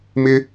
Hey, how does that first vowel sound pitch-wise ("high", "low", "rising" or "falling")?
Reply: high